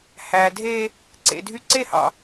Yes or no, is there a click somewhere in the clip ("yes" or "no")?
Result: yes